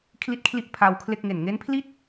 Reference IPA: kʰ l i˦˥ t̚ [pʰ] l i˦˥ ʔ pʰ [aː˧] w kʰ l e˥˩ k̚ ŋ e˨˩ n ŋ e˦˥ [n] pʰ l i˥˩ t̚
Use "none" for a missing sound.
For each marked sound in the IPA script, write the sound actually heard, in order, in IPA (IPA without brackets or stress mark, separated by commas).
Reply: kʰ, aː˧, n